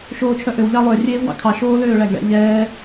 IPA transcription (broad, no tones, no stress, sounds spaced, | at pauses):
ʃ oː t͡ʃʰ œ ʔ ø w ʎ ɑ lˠ ø rʲ eː v w ɑ̰ kʰ ɑ ʃ oː l øː ɭ æ ɡ ɭ ɛ̰ ʎ ɛː